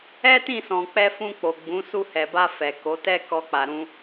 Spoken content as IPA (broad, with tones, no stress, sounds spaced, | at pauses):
ɛ˦ t ĩ˦˨ s ɔ̃˨ k͡p ɛ˧ f ũ˧ k͡p o˨ ɡ͡b ũ˨˦ s u˧ h ɛ˨ b a˧ f ɛ˨ k o˨˦ t ɛ˦ k ɔ˦ k͡p a˧ ɾ ũ˦